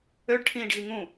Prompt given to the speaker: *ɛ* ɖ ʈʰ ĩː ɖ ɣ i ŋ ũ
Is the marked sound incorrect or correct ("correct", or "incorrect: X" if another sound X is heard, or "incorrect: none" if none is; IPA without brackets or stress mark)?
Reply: incorrect: ø